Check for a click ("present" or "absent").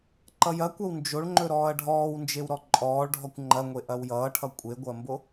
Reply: present